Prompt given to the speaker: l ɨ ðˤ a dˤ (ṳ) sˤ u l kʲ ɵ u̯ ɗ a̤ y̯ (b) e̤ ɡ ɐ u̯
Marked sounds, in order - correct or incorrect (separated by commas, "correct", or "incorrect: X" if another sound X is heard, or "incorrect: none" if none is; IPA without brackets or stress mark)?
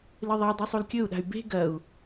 incorrect: u, correct